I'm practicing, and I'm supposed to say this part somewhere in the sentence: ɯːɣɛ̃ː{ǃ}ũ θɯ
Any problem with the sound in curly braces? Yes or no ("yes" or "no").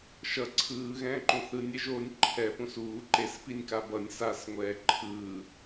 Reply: no